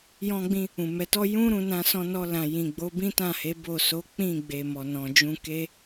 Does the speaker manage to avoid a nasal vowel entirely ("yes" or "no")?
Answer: no